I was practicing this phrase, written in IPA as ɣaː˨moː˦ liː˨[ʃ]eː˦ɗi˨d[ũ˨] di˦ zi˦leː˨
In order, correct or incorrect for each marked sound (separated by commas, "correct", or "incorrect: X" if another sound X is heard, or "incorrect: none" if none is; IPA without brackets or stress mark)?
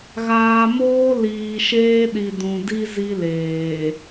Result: correct, correct